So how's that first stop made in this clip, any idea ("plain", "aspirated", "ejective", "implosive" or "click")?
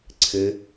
click